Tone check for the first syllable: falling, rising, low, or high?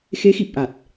rising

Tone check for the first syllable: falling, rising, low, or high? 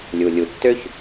low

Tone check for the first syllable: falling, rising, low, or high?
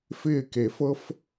falling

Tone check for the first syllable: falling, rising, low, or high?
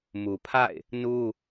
low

